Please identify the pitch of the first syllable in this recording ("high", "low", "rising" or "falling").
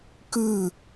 falling